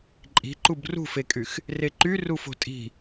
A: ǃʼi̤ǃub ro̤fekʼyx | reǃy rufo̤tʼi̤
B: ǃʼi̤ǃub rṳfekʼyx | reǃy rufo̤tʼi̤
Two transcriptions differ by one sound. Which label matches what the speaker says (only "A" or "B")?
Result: B